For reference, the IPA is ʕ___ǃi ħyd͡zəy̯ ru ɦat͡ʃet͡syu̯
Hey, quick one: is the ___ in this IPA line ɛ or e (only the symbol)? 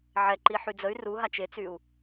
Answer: ɛ